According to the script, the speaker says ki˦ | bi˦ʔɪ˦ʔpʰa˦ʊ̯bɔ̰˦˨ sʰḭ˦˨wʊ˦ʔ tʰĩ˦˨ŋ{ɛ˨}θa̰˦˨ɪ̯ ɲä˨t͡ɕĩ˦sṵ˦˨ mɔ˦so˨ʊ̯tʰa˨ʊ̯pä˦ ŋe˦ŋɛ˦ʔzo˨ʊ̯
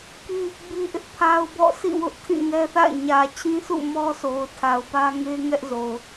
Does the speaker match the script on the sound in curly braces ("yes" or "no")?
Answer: no